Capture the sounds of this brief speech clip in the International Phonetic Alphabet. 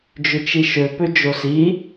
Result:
d͡ʒ ʏ t͡ʃ i ʃ ø p ø d͡ʒ o s i

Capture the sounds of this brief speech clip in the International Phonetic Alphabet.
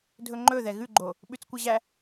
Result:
dʱ ɵ ŋ͡ǃ ɵ ð ɛ ɣ ʉ ɡ͡ǃ o | ɓ ʉ t͡s kʷ ɛ ʑ æ

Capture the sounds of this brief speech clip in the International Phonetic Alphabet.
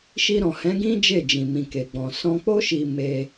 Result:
ʃ i˧ ɾ ɔ̃˨ h ɛ̃˨˦ ɡ ĩ˦ d͡ʒ e˦˨ d͡ʒ ĩ˨ m ĩ˨ k e˨ ɡ͡b ɔ̃˨ s ɔ̃˧ k͡p o˦ ʃ i˧ m e˧

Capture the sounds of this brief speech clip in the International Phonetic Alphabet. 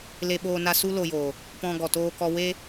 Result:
l e˧ ɓ oː˧ n a˧ s u˦ l o˧ j oː˨ | p ɔ̃˧ ɡ ɔ˨ t oː˧ k ɔ˧ w e˦

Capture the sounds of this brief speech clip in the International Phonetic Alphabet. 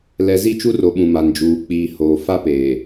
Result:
l ɛ˨ z i˦˨ t͡ʃ u˦ r o˨ ɓ ũ˨ m a˨ n d͡ʒ uː˨ k͡p iː˨ h oː˨ f a˦ p eː˨

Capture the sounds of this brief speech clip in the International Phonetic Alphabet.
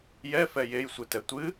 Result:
j ɛ f ɛ j e j sʷ ɨ t ɛ tʷ ɨ

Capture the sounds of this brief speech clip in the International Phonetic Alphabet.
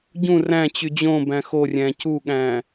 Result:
ɟ ũ r æ̃ t͡ɕ y d͡ʑ õ b æ̃ x o rʲ æ̃ c u ɠ æ̃

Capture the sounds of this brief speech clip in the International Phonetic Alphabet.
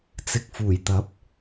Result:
t͡s ɪ˨ k̚ f uː˨˩ j t̪ ɐ˨˥ p̚

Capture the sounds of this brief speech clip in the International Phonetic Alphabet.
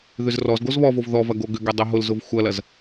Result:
ð ʏ z r ɔ z ɡ o z β ɔ v o v ð ɔ v ɐ ɡ o ɡ ʏ ɡ ɛ dˤ ə ɦ ʊ l z ʊ v xʷ ɐ l ɐ z

